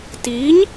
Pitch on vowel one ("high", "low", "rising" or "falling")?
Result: rising